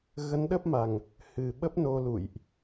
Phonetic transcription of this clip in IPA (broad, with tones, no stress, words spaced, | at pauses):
ɣə˨˦nɗə˦˥p̚ma˨˩ŋ | hɨ˨˩ɓə˦˥p̚no˧lṵ˧˨jʔ